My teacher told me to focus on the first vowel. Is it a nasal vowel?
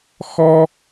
no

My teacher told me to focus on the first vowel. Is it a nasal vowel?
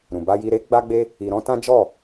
yes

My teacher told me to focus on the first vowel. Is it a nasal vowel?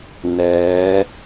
no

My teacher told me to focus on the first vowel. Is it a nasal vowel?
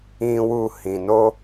yes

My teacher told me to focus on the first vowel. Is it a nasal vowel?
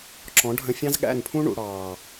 yes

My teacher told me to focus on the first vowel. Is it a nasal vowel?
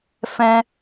yes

